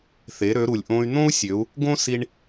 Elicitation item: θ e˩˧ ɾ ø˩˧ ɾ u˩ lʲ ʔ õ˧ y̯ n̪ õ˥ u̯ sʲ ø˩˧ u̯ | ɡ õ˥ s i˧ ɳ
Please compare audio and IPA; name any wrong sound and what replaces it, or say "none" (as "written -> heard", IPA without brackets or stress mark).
none